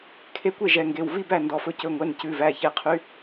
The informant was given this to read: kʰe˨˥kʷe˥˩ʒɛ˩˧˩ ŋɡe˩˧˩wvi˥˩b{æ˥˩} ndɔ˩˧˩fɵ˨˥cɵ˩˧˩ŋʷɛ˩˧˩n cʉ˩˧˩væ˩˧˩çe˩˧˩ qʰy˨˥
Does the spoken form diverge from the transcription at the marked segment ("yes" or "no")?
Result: no